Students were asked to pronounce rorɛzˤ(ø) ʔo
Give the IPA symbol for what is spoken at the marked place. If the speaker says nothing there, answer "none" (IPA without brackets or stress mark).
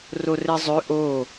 ø